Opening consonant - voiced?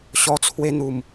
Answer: no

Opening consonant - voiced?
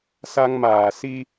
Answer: no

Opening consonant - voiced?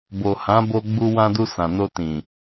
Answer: yes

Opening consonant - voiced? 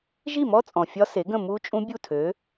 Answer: yes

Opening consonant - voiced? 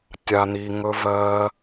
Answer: no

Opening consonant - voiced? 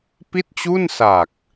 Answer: no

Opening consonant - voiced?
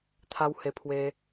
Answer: no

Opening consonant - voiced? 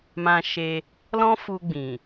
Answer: yes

